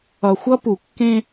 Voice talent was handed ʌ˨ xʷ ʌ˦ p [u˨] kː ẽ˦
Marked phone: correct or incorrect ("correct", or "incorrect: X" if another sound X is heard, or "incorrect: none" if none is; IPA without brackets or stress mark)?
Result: correct